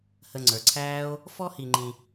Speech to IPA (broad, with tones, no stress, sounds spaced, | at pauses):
h ə˨ ŋ͡ǀ ə˞˩ ǀʰ æː˦ o̯ | f ɔ˥ h i˨ ŋ͡ǃ ĩ˨